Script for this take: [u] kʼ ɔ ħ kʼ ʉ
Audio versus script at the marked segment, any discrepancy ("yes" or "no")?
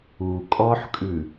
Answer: no